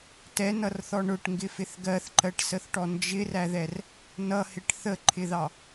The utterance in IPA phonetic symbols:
tɛnʌrθɔ ɳʊʈŋɡɪfɪθ ɡɜθǃɜʈsəθʈɔ nd͡ʒɪræðɛr | nʌhɪʈ θəǃʰɪðɑ

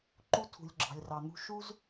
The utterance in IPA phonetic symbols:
ǃu˥tʰṳ˩lʲ ɡ͡ǁɑ̤˩lʲrɑ˩n̪ṳ˥ ʃu˥z

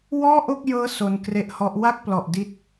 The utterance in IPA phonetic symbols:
wɔː˥˩ʔo˥˩k̚jɤː˦˥ so˧nkre˦˥ʔhɔ˦˥ʔ wa˥˩k̚plɔ˨˩ʔ di˦˥t̚

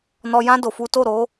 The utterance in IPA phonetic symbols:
nɔ˧jã˦ do˧fu˦ to˦˨ɾo˨˦

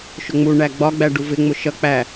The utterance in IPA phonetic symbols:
ʃʊŋ͡mu ɳæɡ͡bɒ ɡ͡bæɖuvɪ ŋ͡mʊʃʌ k͡pæ

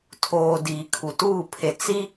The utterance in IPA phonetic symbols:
tʰoː˨ diː˨kʰu˨tuː˦˨pʰe˨ t͡si˦

